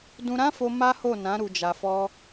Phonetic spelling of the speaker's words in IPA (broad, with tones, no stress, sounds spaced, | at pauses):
d ũ˧ ɾ ã˦ f o˧ m a˦ h o˦˨ n ã˨˦ ɾ u˧ d͡ʒ a˧ f ɔ˦